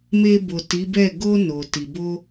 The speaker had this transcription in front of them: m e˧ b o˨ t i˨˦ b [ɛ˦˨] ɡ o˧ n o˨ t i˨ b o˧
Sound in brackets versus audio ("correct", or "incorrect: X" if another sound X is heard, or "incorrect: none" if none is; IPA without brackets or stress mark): correct